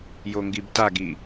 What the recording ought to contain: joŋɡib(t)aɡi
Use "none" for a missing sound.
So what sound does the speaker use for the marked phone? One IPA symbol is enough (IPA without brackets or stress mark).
t